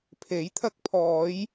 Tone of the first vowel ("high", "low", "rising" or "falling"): rising